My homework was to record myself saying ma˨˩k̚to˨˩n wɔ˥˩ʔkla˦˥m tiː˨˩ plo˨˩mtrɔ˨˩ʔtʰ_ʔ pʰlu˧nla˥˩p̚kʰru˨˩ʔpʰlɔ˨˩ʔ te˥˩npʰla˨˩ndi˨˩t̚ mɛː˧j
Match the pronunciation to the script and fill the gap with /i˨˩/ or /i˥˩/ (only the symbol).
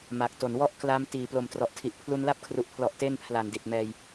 i˨˩